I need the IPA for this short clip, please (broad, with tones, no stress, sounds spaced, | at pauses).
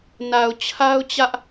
n a˨ ʊ̯ t͡ɕʰ a˦ ʊ̯ t͡ɕ ä˦ ʔ